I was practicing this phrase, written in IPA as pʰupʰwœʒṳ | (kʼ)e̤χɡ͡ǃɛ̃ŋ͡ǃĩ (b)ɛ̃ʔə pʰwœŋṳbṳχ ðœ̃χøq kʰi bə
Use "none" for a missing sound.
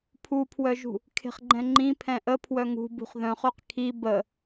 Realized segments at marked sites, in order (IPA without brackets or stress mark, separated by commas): kʰ, pʰ